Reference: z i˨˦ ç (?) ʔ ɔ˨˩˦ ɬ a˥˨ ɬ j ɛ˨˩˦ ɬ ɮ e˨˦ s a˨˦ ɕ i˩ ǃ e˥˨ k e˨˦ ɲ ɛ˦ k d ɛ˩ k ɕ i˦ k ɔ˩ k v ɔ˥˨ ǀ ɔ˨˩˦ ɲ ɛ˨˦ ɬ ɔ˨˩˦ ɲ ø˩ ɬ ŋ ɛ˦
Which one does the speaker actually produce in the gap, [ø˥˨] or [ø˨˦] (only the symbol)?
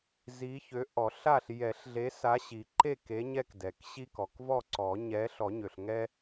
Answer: ø˨˦